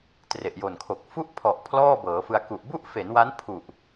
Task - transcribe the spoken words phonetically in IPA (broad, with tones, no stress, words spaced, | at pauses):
tre˨˩ʔjo˨˩nkʰo˨˩k̚ fu˥˩ʔpʰɔ˨˩ʔ pʰlɔː˥˩bɤː˩˦fɯ˧a̯ ku˨˩ʔbu˥˩ʔfe˩˦nwa˦˥n pʰu˨˩ʔ